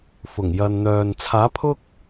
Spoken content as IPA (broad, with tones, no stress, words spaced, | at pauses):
fʊ˨˩ŋjɐ˨nn̪œː˨n t͡sʰaː˨˥pʰʊ˥k̚